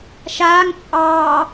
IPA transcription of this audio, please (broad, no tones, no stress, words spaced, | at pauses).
ʃaːŋ t͡ʃʼɑː